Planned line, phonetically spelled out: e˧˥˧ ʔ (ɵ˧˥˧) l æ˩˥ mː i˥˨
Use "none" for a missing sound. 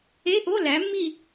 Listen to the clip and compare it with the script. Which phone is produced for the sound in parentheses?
o˧˥˧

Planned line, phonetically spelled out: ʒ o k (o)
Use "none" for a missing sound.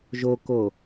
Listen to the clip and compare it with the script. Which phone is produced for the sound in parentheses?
o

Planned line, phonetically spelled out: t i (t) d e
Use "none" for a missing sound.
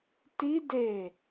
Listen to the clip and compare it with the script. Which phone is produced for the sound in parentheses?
none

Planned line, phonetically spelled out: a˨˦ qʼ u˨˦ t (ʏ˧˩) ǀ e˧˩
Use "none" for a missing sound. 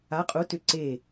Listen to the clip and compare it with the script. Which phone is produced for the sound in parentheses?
ʏ˧˩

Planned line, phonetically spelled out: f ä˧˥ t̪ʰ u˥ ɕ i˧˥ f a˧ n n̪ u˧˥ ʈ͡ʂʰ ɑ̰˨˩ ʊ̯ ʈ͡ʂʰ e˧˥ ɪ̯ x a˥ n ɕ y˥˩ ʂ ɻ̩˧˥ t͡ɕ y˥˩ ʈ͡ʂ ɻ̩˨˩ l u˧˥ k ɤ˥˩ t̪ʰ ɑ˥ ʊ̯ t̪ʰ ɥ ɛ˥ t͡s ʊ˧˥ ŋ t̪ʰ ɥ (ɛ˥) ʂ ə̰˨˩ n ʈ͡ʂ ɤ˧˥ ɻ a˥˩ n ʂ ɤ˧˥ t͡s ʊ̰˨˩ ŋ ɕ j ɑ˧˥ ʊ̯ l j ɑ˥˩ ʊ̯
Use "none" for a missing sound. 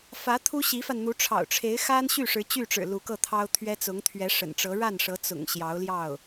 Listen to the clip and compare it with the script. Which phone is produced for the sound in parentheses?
ɛ˧˥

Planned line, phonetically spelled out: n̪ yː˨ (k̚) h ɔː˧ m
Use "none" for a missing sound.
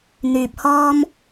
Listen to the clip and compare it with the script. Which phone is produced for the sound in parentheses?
p̚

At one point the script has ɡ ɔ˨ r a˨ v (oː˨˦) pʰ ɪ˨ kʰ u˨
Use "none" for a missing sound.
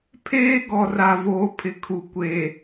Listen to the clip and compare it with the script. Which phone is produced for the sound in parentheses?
oː˨˦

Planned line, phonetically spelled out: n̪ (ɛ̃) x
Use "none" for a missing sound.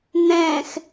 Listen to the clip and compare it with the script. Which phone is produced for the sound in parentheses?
ɛ̃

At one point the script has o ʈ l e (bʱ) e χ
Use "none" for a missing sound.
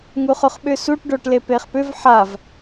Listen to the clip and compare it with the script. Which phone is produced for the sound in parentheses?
p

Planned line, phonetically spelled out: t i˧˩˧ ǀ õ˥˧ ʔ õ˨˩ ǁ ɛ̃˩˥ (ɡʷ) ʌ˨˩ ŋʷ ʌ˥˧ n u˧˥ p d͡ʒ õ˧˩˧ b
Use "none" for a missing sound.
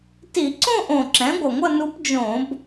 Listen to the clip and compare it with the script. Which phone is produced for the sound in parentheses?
ɡʷ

